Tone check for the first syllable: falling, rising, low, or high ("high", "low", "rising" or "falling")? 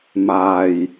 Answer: low